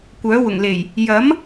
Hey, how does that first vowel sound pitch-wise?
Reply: rising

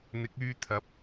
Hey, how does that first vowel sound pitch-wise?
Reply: rising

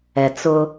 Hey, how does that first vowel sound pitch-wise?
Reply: low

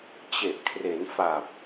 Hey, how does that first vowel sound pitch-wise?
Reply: low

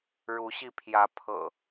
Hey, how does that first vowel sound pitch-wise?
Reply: rising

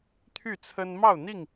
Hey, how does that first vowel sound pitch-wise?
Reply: falling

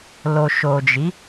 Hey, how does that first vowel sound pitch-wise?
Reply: low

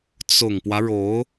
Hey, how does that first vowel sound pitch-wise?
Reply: low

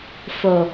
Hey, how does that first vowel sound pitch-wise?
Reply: low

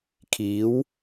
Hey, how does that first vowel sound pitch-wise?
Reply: rising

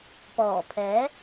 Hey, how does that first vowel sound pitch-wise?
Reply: low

